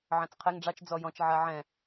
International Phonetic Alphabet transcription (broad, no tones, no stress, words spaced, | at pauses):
ʕɑ̃t͡sqʰɛŋ ɖ͡ʐɑt͡ʃ d͡zɔjɔ̃t͡ʃ ʕaʕɛ̃